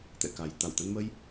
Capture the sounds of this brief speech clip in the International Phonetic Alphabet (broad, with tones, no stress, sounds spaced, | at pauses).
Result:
t̪ ɛ̰˧˨ k a˨˩ j t̪ a˧˩ w t̪ ə˧ n m ə˧ j